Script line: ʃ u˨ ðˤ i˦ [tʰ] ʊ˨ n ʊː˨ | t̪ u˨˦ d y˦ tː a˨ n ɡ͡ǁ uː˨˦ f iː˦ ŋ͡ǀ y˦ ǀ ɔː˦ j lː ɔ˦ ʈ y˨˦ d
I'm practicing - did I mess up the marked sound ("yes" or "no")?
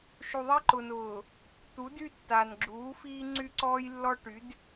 yes